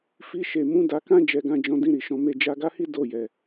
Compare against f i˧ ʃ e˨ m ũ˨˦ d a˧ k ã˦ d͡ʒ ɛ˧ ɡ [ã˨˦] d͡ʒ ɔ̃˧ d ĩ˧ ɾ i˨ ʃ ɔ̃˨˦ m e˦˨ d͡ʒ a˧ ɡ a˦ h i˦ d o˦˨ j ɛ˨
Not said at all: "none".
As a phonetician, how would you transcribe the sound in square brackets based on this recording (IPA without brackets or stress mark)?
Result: ã˧